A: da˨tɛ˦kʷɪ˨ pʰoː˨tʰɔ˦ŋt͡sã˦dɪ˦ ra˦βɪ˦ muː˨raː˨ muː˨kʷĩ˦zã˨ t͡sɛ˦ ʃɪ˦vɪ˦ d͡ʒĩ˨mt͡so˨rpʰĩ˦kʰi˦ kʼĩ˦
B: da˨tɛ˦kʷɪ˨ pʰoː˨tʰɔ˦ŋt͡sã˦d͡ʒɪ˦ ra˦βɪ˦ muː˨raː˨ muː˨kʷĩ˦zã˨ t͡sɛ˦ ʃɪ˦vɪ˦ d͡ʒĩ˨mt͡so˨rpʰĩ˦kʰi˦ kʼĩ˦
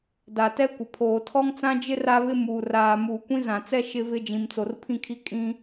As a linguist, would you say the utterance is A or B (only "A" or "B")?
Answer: B